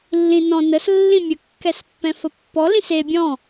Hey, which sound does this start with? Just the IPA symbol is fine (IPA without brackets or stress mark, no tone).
lː